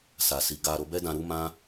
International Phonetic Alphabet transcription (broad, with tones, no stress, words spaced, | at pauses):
sa˨si˨ ɡa˧ ɾo˧bɛ˦dã˧ ɾu˦mã˦